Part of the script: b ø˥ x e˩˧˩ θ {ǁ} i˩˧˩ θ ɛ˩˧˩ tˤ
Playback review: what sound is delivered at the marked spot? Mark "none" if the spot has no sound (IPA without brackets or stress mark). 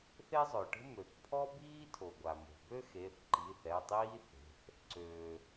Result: ǃ